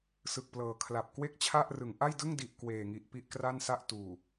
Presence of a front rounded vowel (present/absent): absent